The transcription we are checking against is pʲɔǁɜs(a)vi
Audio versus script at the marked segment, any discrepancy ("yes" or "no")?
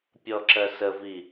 yes